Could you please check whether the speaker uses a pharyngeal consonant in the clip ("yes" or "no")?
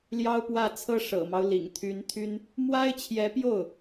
no